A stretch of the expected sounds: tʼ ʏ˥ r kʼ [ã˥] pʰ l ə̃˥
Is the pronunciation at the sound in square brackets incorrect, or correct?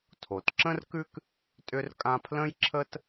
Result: correct